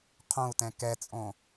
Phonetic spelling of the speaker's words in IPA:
qʰ õ u̯ t ɛ̃ k ɛ t͡sʼ õ

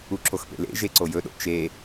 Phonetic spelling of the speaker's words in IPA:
u ǁʰ o x p ḛ l ḛ ʒ e ǀ o j ɵ ɗ o̰ t͡ʃ e

